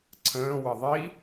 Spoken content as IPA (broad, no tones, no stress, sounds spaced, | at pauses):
ǀʰ ə̃ː w ə ðˤ i